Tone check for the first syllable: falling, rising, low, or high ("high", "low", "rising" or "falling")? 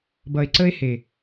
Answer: low